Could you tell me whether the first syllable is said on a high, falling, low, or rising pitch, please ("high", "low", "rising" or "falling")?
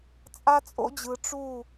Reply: high